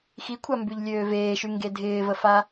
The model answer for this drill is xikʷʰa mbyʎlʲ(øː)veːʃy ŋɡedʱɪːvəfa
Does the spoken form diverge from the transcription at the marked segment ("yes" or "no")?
no